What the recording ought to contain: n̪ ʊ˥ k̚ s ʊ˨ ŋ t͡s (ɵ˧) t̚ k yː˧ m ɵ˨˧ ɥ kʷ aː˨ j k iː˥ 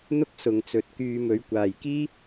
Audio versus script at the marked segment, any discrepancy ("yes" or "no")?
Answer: yes